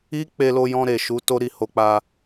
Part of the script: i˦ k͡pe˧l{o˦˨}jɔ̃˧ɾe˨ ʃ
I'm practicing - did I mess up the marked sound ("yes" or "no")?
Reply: yes